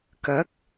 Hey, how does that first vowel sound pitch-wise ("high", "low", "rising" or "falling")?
rising